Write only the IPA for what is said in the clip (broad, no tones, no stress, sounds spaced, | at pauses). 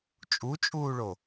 t͡ʃʼ u t͡ʃʼ uː ɭ o